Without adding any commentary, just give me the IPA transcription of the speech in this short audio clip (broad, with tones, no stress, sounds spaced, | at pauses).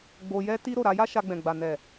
ɡ͡b o˧ j ɛ˦ t i˦ ɾ o˦˨ ɾ a˧ j a˦ ʃ a˧ ɡ͡b ɛ̃˨ ɡ͡b a˨ n ɛ˨